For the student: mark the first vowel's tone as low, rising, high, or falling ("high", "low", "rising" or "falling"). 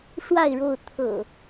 falling